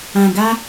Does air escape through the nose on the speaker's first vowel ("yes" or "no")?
yes